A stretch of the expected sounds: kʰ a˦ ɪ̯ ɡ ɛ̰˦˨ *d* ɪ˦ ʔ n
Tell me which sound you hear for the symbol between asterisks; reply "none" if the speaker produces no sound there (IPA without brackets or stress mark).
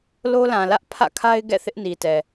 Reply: θ